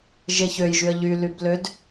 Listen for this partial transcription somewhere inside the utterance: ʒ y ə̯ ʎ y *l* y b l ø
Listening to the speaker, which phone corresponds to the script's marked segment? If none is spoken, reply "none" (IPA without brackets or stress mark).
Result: l